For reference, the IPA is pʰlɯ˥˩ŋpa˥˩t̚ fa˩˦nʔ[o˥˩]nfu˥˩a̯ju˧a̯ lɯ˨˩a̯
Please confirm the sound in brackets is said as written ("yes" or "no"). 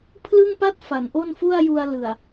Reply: yes